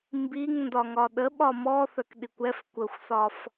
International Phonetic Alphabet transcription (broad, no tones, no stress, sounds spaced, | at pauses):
m b i ŋ n d ɒ ŋ ɒ ɗ ə ɓ ɒ m ɔ θ œ k ɗ i kʷ ɛ f kʷ ə xʷ s ɒ f